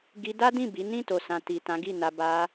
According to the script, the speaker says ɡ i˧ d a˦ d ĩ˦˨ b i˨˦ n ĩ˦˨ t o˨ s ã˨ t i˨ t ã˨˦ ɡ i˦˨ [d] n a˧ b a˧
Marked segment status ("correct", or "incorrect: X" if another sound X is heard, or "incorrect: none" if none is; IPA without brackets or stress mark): incorrect: none